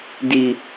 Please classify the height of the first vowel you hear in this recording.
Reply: high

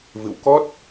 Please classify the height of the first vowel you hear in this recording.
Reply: high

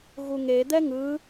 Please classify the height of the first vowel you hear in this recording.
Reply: high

